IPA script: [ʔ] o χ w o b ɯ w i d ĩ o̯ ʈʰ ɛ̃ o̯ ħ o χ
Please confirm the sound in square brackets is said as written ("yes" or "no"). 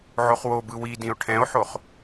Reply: no